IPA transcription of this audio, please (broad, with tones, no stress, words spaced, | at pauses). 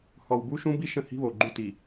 hɔ˨wbu˦ʃũ˦bi˦ ʃə̃˦hi̤˦βo˨ɡ͡ǃu˦ ti˨